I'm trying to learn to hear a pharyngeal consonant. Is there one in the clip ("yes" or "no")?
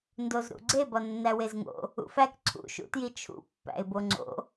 no